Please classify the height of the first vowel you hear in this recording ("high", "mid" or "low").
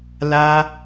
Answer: low